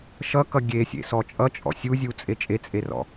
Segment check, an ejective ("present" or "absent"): present